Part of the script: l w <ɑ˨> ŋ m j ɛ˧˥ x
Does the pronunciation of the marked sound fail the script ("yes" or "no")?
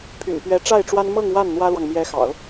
no